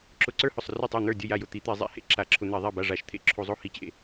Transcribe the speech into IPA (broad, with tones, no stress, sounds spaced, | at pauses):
ǁ ʊ˧˩˧ ǀ ə˞˥˩ h ʊ˥˩ sˤ r ʊ˥˩ tˤ o˥˩ n̪ ə˞˥˩ dʲ ə˥˩ j a˥˩ j ʊ˥˩ t̪ i˧˩˧ t̪ e˧˩˧ zˤ ḛ˧˩˧ h ḛ˥˩ ǁ a˧˩˧ ǁʰ ʊ˧˩˧ n̪ e˧˩˧ ðˤ e˥˩ b a˥˩ ʐ a˧˩˧ ʃ t̪ʰ ḛ˥˩ ǁʰ u˧˩˧ zˤ o˥˩ h i˥˩ t͡ɕ ḛ˥˩